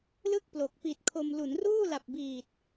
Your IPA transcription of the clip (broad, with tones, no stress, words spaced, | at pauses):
lɯ˥˩k̚ plo˨˩k̚ pi˨˩t̚kʰo˧m lu˩˦nruː˥˩la˨˩p̚biː˨˩t̚